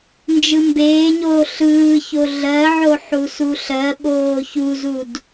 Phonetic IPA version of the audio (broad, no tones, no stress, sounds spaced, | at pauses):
n d͡ʒ ɯ m b eː ɲ oː ɬ ɯː ç o ɮ ɜ ʕ o ħ u s u ɬ ɜ ɓ oː ç u z u d